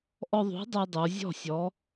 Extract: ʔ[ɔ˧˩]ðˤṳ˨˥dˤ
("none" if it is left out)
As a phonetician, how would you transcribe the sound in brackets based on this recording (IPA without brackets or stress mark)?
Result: ɔ˧